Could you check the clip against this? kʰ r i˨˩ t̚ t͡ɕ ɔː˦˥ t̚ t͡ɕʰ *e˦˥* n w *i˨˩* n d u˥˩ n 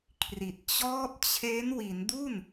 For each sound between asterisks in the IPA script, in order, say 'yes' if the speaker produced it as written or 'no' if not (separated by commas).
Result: yes, no